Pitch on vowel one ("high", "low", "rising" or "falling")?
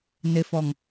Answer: low